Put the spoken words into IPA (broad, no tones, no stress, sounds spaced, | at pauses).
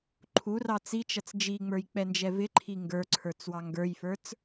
ǃʰ u r ɑ t͡s i t͡ʃ ʌ t͡s d͡ʒ i ŋ͡m ə˞ j k͡p ɛ n d͡ʒ ɛ v ɪ ǃʰ i ŋ ɡ ə˞ ǀʰ ə˞ t͡s w ɑ ŋ ɡ ə˞ j f ə˞ t͡s